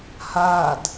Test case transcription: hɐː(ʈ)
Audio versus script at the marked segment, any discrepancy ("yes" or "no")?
yes